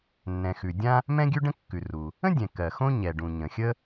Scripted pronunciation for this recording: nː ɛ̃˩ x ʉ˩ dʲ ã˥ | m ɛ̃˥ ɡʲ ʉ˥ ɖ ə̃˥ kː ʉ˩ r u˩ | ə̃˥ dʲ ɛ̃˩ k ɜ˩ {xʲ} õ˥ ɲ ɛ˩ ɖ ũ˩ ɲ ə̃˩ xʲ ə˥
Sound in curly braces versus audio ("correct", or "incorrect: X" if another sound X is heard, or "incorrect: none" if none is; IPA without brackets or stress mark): incorrect: x